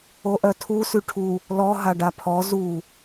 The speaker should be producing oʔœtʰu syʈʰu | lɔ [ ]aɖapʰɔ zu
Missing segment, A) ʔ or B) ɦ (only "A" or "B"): B